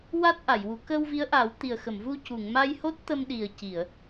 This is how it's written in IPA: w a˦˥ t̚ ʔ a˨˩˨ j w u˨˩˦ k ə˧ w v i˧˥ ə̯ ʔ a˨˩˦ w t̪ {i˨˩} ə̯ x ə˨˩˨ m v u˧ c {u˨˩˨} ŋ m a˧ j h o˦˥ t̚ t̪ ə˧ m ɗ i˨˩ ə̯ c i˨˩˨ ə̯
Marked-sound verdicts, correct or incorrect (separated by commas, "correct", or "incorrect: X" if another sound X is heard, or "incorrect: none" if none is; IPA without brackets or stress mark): correct, correct